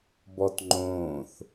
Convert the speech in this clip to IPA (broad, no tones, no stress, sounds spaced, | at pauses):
b ɔ t ŋ͡ǃ õː θ